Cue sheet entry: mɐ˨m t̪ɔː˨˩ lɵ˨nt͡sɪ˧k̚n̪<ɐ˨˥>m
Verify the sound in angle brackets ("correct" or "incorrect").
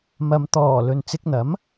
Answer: correct